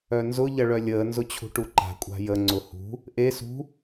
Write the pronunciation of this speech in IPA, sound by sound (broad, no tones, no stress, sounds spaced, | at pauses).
œ n z ʊ ʎ ɐ ɭ œ lʲ əː n z ʊ t͡ɕʰ ṳ ʈ u ǃ a̤ kʷʼ a̤ j ə ŋ͡ǀ ʊ h ṳ | ʔ e s ṳ